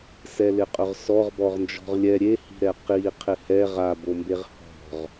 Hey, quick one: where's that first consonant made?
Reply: tongue tip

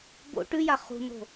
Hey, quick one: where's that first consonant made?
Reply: lips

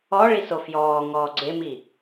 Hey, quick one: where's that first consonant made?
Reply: retroflex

